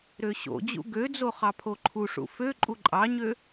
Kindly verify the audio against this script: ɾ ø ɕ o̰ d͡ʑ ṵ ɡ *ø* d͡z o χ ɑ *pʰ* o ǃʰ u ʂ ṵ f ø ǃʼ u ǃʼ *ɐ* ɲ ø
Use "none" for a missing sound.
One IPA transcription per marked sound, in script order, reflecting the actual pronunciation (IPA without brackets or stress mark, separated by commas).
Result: ø, pʰ, ɑ